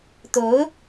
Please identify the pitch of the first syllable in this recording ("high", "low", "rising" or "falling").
rising